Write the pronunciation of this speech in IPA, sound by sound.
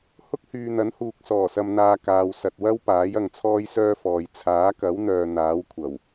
h ʊ˥ k̚ h yː˨ n̪ ɐ˨˥ n h uː˨ k̚ s ɔː˨˩ s ɐ˨ m n̪ aː˨ k aː˨ w s ɐ˨ t̚ w ɐ˥ w p aː˨˥ j ɐ˨ ŋ t͡sʰ ɔː˥ j s œː˥ f ɔː˨ j t͡sʰ aː˨˥ k ɐ˨˥ w n̪ œː˨ n̪ aː˨˥ w kʷʰ ɐ˨˩ w

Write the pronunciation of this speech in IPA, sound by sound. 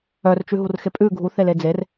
œ r t͡ʃ ʉ ɦ u r x e pʼ ʉ ɡʱ u θ e l e d͡z e r

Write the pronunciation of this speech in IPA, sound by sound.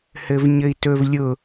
h ɘ v ɲ ɘ i̯ t ɵ v lʲ ʊ

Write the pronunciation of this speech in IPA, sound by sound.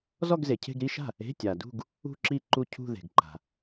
z ɔ˥˧ ɡ z e˨ cʰ e̤˥˧ ɡ ɾ i˥˧ ʃ a̤˥˩ | e̤˧˥˧ tʲ a˨ d ṳ˥˧ ɡ | ṳ˥˧ ǁ i˥˩ ǃ u˥˩ cʰ ṳ˥˧ ð e̤˨ ɡ ǃ a̤˨

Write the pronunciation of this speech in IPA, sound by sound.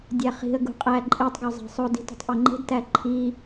dʲ æ χ i̤ ə̯ ɡ ṳ qʼ æ ǃʼ i tˤ ɡ ɒ zˤ æ̤ sˤ o d i̤ t o̤ tˤ ʔ o ŋ͡ǃ e̤ d t æ ǃʰ i

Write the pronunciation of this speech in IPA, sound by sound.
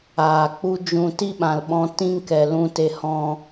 aː˨ k͡p u˦ d͡ʒ ũ˧ t i˦ ɓ ã˨ l ɓ ɔ̃˧ t ĩ˦ ŋ k ɛ˨ l ũ˧ t e˧ h ɔ̃˧

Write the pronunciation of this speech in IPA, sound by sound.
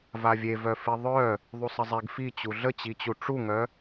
v a vʲ e v œ f i ðˤ œ | ðˤ u sˤ ə zˤ e ɡ f i t͡ɕ u ɮ ə t͡ɕ i t͡ɕ u ʈ͡ʂ u ŋ œ

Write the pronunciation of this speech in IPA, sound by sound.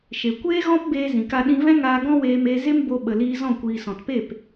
ʃ e˨ kʷ eː˦ ɣ ɔ̃˦ p b eː˧ z ĩ˨ k a˧ ɗ ĩ˧ v ɛ̃˦ ŋ aː˧ ɡ ɔ̃˦ w eː˧ m eː˧ z e˦ m b o˧ ɓ ə˨ l iː˧ z ɔ̃˦˨ kʷ iː˨ s ɔ̃˨ t p e˦˨ p

